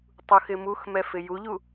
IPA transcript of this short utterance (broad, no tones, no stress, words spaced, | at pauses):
tˤuxɪmuxmɛ fɪjuʎu